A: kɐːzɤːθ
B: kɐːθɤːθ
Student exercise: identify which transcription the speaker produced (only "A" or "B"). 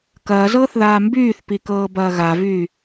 A